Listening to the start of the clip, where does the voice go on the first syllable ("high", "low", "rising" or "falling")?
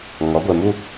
rising